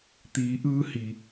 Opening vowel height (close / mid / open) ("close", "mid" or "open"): close